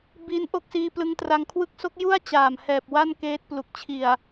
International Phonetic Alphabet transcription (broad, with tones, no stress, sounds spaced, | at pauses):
b iː˦˥ n ʔ o˥˩ k̚ s iː˧ p l ɯ˧ ŋ t r a˧ ŋ kʰ w ɯ˦˥ k̚ s o˦˥ k̚ j u˥˩ a̯ t͡ɕ aː˨˩ m h ɛː˨˩ p̚ w a˥˩ n k eː˦˥ t̚ p l u˨˩ k̚ t͡ɕʰ i˨˩ a̯